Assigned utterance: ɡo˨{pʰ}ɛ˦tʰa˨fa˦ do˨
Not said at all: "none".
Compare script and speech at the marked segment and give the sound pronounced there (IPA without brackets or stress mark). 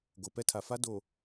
p